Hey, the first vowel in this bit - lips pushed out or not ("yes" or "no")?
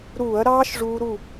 yes